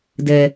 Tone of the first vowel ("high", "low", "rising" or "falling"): low